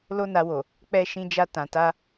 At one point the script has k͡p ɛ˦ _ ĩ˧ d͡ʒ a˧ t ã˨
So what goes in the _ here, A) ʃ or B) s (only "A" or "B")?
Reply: A